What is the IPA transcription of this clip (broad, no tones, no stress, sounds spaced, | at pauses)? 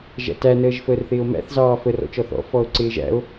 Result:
ʒ æ̰ t æ n əː ʒ f əː r θ ɪː o̯ m æ̰ θ z ɑː f ə r ɔ̰ t͡ʃ ɔ θ ɔ̰ f ɔ o̯ ǀ ɪː ʒ æ̰ o̯